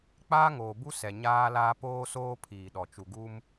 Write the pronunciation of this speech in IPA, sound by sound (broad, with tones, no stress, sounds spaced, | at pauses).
k͡p aː˦ ŋ oː˨ b u˦ s ɛ˨ ɲ aː˦ l aː˦ p oː˦ s oː˦ pʰ iː˨ ɗ ɔ˨ t͡ʃ u˨ ɡ u˦ m